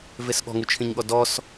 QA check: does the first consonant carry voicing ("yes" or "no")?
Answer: yes